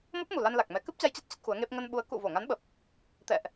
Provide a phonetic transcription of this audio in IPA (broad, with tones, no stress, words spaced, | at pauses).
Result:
mo˦˥p̚mu˨˩la˧n la˨˩k̚mɛ˨˦ kɨ˦˥p̚t͡ɕa˧jt͡ɕə˦˥t̚ t͡ɕə˦˥t̚xu˨˦ə̯ŋe˦˥p̚ ŋə˧nɓu˨˦ə̯ kṵ˧˨vo˧˩ŋa˨˦nɓə˨˩p̚ | t̪ɛ̰˧˨ʔ